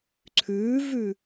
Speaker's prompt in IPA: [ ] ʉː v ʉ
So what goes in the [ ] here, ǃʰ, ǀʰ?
ǀʰ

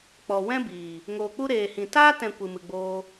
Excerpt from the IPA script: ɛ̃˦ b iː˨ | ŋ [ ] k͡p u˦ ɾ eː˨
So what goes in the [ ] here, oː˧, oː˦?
oː˧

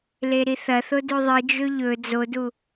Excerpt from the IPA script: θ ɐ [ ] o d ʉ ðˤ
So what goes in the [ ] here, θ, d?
θ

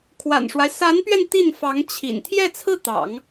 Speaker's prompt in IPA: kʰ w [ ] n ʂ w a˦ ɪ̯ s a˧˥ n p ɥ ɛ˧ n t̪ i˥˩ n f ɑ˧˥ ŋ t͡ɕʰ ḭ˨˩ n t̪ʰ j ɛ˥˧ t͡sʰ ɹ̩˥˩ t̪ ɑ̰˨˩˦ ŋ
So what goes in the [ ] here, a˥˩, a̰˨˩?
a̰˨˩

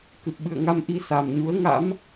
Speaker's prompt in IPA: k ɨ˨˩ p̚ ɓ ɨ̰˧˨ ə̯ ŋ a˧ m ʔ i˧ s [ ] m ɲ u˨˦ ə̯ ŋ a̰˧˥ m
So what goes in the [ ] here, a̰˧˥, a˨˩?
a˨˩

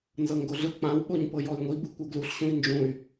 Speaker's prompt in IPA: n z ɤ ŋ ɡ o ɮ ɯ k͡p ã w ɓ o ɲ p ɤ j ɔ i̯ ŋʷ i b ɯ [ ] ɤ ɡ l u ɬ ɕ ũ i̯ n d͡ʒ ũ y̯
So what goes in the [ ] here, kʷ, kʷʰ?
kʷ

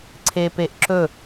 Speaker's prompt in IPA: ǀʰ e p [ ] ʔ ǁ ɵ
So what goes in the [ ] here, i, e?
e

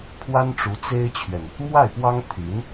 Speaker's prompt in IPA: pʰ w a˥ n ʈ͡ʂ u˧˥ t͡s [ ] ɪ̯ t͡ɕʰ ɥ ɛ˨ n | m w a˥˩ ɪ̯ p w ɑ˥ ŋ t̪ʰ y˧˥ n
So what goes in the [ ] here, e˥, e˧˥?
e˥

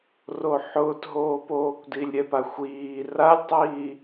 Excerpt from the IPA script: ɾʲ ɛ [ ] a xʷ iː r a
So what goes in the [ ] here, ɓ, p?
p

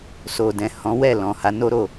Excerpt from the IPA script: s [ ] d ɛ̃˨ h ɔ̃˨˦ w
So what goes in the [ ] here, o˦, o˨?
o˨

